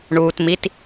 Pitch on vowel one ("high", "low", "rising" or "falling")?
low